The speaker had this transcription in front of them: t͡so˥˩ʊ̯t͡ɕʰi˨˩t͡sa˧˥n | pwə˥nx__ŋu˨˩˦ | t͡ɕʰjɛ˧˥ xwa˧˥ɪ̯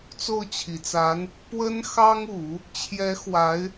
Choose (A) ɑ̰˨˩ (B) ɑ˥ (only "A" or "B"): B